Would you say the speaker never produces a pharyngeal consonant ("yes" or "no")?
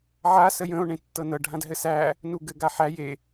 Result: no